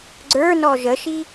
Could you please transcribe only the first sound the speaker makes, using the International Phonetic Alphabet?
ɡ͡ǀ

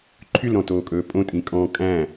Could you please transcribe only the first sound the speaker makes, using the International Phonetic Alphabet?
ǃʰ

